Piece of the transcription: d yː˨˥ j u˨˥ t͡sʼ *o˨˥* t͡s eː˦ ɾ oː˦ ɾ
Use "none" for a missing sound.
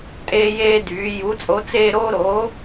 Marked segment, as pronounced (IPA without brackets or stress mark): o˨˥